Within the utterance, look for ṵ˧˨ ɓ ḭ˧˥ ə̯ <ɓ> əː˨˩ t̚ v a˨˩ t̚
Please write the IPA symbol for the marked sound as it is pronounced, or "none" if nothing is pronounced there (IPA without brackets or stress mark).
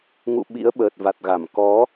ɓ